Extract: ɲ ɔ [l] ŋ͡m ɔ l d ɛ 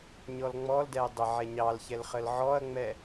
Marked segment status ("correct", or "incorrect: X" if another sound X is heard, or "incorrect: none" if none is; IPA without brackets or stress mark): correct